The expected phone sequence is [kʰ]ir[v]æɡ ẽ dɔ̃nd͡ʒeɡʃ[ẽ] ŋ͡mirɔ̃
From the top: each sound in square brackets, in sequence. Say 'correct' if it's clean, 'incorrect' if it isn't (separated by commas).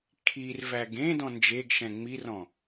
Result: correct, correct, incorrect